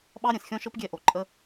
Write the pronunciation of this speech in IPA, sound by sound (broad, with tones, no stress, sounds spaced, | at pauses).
ɓ ɑ˥ ɾʲ ɛ̃˩ s xʲ ɔ̃˥ ʃ ɤ˥ p ɡʲ ɛ˥ ʔ o˩ ǃʼ ə˥